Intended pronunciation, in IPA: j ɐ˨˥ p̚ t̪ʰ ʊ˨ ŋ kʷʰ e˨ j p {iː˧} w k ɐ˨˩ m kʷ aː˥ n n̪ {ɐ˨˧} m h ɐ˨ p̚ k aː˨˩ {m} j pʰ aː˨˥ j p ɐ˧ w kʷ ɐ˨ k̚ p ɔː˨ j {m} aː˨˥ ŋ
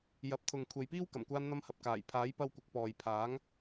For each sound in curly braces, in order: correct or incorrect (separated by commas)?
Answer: incorrect, incorrect, incorrect, incorrect